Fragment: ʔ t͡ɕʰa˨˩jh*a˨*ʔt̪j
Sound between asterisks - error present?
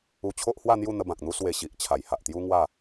no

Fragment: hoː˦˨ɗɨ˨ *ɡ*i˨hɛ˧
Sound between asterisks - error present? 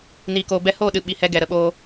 yes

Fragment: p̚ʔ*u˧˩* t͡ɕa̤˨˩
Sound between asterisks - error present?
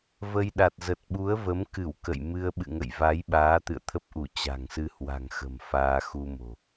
no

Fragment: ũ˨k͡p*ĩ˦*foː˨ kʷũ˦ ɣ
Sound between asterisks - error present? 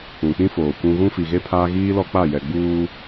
no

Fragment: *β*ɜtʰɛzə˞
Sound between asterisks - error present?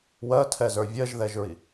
yes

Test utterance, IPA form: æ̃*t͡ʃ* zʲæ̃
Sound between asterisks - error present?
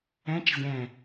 no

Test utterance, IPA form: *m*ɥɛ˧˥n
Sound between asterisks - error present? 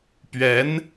yes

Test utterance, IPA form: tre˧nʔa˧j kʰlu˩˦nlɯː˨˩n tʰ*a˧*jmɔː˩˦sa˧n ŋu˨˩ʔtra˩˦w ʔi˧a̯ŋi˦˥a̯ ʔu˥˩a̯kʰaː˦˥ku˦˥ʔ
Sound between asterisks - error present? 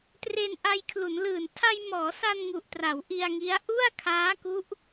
no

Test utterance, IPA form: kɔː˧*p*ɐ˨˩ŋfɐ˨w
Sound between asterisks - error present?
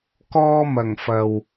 yes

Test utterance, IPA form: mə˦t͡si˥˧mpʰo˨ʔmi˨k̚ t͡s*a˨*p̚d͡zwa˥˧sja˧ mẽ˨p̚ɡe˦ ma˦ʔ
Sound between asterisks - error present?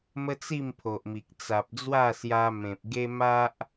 no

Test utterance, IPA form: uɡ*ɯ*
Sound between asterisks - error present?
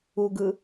no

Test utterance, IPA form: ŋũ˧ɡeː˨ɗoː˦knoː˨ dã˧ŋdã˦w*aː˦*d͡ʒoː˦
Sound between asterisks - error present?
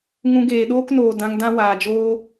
yes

